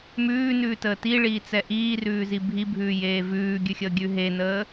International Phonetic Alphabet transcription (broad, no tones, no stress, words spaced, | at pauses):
mʉːnʉːtəː tiɭiːt͡sɛ ʔiːrʉːzi bʱibʱʉːjeː vʉːɡʲʉxʲəːɡʲʉ ɦenəː